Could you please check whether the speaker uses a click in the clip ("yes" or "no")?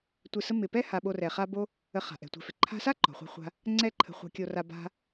yes